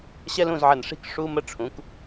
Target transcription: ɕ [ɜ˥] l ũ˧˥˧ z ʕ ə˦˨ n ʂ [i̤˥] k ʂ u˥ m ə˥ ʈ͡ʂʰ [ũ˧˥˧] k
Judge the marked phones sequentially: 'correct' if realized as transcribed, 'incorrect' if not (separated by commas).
incorrect, correct, incorrect